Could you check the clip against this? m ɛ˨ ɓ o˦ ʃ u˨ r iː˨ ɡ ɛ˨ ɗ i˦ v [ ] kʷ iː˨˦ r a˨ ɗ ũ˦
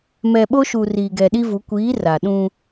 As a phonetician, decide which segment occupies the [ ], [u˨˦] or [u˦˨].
u˨˦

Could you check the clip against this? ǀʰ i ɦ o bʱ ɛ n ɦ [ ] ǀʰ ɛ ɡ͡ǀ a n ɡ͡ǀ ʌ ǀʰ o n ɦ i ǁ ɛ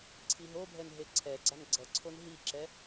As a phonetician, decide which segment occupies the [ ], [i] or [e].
e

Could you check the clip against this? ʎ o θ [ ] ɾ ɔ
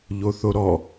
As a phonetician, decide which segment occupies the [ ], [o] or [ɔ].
o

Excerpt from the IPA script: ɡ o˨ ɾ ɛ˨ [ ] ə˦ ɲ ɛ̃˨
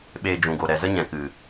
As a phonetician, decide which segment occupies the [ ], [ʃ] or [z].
z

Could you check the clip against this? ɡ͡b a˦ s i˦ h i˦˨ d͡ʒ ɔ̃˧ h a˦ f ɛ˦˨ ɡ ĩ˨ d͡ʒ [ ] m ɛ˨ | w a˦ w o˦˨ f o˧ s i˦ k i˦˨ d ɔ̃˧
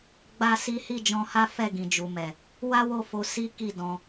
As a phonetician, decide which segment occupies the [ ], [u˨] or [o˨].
u˨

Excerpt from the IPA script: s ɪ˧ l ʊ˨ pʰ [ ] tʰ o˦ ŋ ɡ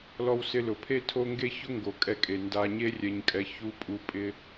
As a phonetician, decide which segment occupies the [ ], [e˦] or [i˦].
e˦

